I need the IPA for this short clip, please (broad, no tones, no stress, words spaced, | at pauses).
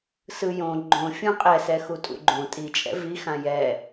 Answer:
sɯjõ ɡ͡ǃõ fʲũqʼɛ sɛxutʼṵɡ͡ǃõ tʼit͡ʃʼɛ̰ vixã jɛ